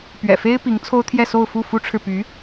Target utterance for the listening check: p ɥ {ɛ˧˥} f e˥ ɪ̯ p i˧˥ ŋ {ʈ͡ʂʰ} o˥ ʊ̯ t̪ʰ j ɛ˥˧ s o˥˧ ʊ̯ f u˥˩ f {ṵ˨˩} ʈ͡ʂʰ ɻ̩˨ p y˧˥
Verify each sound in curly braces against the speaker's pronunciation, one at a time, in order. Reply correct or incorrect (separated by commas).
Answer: incorrect, incorrect, incorrect